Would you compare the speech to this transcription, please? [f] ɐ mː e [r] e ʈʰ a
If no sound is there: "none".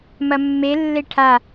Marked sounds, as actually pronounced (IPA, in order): m, lː

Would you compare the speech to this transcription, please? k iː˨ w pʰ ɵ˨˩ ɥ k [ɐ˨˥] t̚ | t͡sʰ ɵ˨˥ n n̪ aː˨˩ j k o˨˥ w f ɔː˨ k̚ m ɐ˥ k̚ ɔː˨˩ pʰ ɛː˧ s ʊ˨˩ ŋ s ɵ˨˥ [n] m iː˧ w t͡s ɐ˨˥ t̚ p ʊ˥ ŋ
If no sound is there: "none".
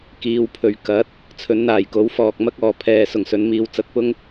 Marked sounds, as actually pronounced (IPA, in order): ɐ˨˥, n

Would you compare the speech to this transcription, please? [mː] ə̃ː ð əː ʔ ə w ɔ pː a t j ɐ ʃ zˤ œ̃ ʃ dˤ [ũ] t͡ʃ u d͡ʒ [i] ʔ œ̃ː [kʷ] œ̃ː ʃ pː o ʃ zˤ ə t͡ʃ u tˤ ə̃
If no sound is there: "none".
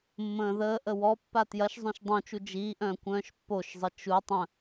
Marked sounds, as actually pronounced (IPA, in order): mː, õ, iː, kʷ

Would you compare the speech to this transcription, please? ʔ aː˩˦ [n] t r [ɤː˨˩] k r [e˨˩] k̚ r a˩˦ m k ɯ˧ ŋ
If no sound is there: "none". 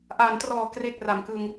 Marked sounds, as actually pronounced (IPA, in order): n, ɔː˨˩, e˨˩

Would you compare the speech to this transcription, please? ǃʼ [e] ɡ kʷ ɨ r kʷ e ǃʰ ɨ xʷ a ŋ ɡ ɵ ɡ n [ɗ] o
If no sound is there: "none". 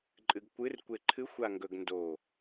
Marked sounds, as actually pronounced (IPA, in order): ɨ, d

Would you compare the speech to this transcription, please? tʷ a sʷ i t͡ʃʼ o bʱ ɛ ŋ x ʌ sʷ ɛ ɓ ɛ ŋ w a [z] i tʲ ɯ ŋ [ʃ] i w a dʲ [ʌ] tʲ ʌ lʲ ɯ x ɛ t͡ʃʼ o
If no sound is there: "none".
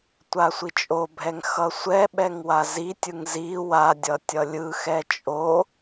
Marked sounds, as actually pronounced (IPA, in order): z, z, ʌ

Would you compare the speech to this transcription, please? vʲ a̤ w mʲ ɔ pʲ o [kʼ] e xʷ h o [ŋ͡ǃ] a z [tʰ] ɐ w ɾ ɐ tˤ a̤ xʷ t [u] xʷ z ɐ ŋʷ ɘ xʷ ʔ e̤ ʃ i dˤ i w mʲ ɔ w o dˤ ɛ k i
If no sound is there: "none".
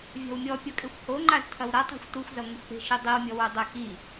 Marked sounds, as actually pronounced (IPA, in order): kʼ, ŋ͡ǃ, tʰ, u

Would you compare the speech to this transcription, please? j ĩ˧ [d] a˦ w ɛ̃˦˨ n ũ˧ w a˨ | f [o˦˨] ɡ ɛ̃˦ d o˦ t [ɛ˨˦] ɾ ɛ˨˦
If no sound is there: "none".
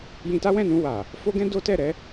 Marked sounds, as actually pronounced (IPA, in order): t, o˦, ɛ˦˨

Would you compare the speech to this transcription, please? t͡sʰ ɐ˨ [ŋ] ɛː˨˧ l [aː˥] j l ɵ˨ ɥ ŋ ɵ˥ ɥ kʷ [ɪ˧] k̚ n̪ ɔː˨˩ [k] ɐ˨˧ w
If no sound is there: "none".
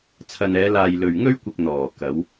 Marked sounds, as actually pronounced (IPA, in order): n, aː˨, ɪ˧, k

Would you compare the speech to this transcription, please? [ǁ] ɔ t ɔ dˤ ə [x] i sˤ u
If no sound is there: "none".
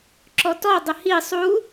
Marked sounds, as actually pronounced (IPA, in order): ǁ, h

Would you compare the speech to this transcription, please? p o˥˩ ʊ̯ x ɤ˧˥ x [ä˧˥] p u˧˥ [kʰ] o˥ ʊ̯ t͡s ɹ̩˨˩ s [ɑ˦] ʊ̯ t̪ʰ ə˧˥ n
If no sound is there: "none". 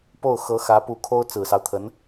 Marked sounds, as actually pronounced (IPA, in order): ä˧˥, kʰ, ɑ˦

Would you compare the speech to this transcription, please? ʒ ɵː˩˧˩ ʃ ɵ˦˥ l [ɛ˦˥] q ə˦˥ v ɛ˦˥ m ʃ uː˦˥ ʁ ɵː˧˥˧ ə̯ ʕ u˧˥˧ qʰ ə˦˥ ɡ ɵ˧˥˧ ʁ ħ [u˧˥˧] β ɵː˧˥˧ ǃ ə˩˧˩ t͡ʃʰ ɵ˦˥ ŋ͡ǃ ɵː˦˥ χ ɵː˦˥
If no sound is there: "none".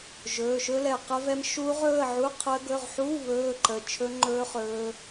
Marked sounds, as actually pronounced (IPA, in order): ɛ˧˩, u˧˥˧

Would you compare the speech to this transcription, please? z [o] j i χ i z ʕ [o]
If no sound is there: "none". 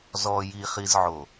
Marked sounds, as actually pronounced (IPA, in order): ɔ, o

